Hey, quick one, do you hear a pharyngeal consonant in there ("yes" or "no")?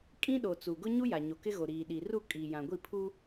no